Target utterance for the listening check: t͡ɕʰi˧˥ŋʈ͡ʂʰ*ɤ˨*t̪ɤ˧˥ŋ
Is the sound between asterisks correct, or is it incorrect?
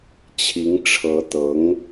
incorrect